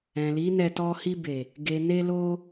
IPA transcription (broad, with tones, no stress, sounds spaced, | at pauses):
ɛ̃˨ l i˨˦ n ɛ˧ t ɔ˧ h i˧ b e˨ | ɡ e˨ n e˧ l o˧